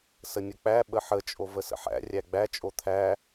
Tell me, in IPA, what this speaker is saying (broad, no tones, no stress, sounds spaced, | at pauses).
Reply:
s ə nʲ ə k͡p æ ɓ ə ħ ə t͡ʃʼ o v ə s ə̰ ħ æ̰ rʲ æ ɡ͡b æ t͡ʃʼ o t̪ʰ æ